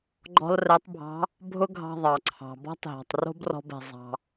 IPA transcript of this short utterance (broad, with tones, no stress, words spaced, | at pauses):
ɡ͡ǃɔ̤˥lrɛ˧˥tˤbʱɑ̤˧˥ | bʱʊ˥ɡʱɑ̤˧ ðˤɑ˩ǀʰɑ̤˩bɔ̤˥tˤɦɔ̤˩tˤ ro̤˥brɔ̤˧bɛ̤˩ zˤɑ̤˩